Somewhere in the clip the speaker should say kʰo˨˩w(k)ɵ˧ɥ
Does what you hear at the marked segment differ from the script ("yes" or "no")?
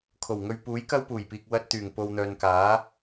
yes